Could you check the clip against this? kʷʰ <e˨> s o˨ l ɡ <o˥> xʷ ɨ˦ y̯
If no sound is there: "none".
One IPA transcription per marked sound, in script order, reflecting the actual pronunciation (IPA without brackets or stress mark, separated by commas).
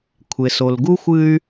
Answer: e˨, u˥